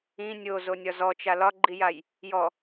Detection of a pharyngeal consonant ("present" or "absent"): absent